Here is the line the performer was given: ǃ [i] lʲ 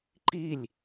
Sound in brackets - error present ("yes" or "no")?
no